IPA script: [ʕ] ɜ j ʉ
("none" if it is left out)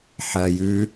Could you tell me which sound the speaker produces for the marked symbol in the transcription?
ħ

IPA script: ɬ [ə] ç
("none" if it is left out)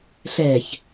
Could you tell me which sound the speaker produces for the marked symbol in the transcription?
ɛ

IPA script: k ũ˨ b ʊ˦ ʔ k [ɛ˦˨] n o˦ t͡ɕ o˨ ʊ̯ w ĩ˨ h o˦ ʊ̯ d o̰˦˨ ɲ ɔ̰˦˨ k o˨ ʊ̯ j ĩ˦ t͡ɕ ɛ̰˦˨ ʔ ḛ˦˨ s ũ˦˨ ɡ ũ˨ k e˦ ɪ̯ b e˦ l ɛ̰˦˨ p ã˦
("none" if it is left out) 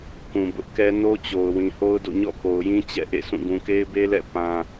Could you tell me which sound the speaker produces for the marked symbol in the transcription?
ɛ˦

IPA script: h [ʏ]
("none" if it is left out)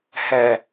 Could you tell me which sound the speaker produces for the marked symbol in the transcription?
ɛ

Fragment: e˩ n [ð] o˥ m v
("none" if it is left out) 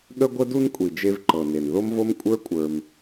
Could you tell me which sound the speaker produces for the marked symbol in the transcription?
ð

